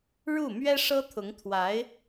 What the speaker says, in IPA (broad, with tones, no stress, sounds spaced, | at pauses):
ɻ u˥˩ m ɥ ɛ˥ ʂ ɤ˥ t̪ʰ ʊ˧˥ ŋ t̪ʰ w a˧˥ ɪ̯